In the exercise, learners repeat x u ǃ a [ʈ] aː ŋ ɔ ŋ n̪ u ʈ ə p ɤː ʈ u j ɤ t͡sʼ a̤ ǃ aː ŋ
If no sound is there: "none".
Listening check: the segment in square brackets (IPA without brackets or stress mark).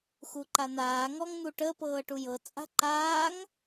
n̪